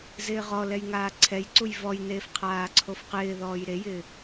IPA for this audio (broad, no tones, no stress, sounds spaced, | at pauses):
z ɪː ʁ ɔ l ɛ j ŋ aː ǀʰ ɛ j ǀ u j v ɔ j n eː f qʰ aː ǀʰ o f q ɪː ð ɔː j ɾ e j ɪː